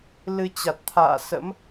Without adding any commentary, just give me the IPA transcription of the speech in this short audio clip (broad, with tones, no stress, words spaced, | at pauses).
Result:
lɨ˧t͡ɕa˨˩t̚ t̪ʰa̰ː˧˨sə̰˧˥m